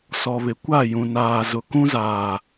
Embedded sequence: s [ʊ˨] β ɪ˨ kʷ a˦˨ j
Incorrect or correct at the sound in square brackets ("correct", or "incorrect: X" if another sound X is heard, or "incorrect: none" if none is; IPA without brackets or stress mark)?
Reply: incorrect: ɔ˨